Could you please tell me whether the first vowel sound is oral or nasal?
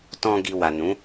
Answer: nasal